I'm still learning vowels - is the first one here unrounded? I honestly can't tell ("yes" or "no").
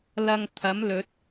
yes